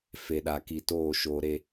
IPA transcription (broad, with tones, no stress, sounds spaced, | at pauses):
f e˨ ɗ a˨ k i˨ t oː˦˨ ʃ oː˨ ɾ e˨